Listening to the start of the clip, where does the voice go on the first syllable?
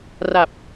low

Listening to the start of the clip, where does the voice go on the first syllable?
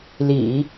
low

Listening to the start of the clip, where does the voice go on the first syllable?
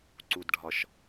low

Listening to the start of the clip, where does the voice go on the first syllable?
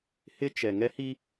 high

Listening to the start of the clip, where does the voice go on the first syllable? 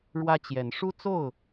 high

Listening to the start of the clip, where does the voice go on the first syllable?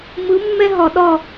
rising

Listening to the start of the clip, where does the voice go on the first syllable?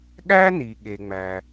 high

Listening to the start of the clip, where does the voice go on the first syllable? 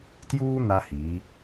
high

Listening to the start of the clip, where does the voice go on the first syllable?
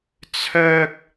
high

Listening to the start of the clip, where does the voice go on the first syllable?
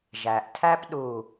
low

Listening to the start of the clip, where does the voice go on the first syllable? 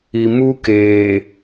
low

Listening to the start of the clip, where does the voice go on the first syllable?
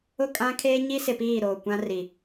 falling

